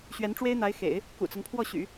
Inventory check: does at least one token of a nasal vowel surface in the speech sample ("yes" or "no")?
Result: no